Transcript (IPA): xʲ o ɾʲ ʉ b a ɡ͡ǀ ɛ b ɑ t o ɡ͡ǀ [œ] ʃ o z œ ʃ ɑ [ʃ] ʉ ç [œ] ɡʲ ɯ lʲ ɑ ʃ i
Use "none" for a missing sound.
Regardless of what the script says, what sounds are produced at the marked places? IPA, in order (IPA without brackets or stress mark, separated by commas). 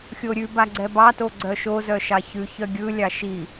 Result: œ, ç, œ